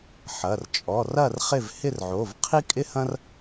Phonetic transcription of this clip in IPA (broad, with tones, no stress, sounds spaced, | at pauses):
ħ ɐ˩˧˩ r t͡ʃʼ ɔ˩˧˩ r ɐ˥˨ r χ ɪ˥˨ v h ɪ˥˨ r ʕ o˩˧˩ v qʰ i˥ kʼ ɪ˥ h ɐ̃˥ r